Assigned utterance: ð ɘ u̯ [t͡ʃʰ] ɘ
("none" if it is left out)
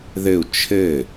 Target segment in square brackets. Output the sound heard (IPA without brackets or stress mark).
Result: t͡ʃʰ